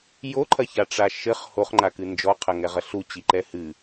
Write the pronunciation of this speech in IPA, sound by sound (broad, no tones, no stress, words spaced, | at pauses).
joǃʰɐçaʈ͡ʂa ʃɘχ hoχŋ͡ǃakɨ nd͡ʒɔqʰɐŋɛʁɐ ɬut͡ɕiǃɛ hɨ